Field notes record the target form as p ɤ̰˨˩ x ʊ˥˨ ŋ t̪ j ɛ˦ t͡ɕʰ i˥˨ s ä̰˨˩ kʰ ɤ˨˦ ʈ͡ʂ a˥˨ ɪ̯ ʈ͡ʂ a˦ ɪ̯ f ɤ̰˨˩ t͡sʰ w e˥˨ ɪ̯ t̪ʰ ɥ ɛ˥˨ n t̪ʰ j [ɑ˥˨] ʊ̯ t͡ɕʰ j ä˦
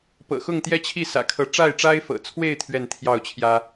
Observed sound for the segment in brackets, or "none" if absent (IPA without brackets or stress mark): ɑ˥˨